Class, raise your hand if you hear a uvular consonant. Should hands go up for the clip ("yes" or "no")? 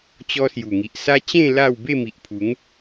no